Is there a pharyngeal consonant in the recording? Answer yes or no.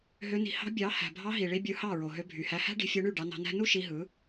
no